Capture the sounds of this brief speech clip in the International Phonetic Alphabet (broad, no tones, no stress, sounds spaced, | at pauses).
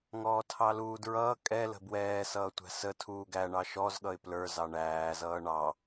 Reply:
ŋ ɔː tʰ ɑ l uː d ɹ ʌː kʼ ɛ l ə̤ b w ɛː s ʌː tʷ æ̤ s ə tʰ uː ɡ æ ɳ ɑ ʃ ɔ z ɠ ʌ ɪ̯ p l ə˞ z ɑ ɳ æː z ʌː ɳ ɑ